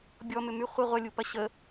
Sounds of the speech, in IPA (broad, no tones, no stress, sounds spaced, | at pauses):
bʲ ɔ m ʏ m y χʷ ɪ ʁʷ ɐ lʲ u p ɐ ɕ ə